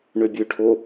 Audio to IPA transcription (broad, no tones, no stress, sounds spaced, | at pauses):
ɳ ø bʲ ø ʈʰ o